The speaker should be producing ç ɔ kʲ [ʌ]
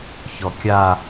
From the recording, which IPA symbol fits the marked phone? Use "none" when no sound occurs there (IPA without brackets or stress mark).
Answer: a